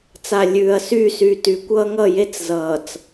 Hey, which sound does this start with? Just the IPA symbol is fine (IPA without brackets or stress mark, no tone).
t͡s